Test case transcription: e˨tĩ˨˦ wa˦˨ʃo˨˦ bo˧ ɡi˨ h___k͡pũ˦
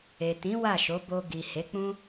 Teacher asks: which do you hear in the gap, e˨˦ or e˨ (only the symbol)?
e˨˦